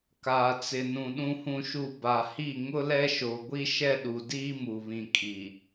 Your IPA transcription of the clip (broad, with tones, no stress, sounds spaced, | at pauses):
k aː˨ t͡s ɪ˨ n ũ˨ ɗ ũ˨ h ũ˨ ʃ u˨ b a˨ h i˦˨ ŋ ʊ˦ l ɛ˦ ʃ o˨ ɡʷ i˦ ʃ ɛ˦ ɗ u˨ d iː˦ m u˨ β ĩ˨ kʼ i˨